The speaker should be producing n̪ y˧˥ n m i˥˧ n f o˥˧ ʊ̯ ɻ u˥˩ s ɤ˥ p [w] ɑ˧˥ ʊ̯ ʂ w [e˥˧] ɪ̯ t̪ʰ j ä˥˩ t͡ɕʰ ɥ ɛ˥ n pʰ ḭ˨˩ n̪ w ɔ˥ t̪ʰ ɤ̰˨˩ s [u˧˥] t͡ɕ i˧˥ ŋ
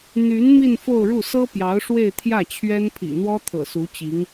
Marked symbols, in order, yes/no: no, yes, yes

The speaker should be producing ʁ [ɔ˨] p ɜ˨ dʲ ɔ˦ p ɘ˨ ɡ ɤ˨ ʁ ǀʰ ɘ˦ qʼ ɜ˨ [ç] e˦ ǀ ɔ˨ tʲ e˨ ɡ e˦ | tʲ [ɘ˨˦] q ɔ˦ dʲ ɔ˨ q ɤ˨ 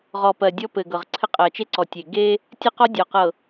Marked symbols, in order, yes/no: yes, no, no

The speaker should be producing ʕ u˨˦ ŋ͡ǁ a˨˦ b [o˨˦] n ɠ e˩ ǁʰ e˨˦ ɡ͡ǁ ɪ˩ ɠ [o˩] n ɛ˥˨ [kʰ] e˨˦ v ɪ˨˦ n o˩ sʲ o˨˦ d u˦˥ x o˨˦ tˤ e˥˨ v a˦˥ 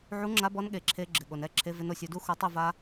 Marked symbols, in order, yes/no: no, yes, no

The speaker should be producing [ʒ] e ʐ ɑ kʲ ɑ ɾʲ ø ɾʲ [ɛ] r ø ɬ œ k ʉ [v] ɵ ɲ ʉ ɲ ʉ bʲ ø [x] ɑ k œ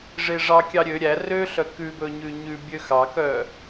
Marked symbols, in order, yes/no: no, no, no, yes

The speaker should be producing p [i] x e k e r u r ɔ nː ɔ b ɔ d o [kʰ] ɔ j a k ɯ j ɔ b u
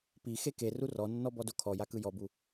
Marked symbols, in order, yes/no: yes, yes

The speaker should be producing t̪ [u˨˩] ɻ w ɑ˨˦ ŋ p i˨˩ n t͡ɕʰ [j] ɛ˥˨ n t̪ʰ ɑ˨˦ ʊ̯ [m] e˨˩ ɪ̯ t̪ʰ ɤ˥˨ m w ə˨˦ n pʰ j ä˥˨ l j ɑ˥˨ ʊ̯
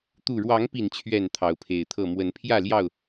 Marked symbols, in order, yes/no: yes, no, no

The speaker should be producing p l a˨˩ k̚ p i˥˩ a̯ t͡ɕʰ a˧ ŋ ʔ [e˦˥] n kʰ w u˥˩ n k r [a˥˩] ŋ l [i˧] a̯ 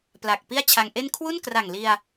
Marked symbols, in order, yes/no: no, no, yes

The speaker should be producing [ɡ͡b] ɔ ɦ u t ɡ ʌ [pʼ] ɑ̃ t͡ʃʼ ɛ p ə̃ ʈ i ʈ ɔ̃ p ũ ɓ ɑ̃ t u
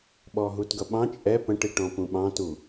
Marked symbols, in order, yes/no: no, no

